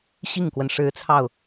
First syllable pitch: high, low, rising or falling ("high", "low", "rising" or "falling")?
falling